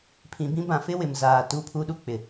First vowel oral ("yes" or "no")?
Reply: no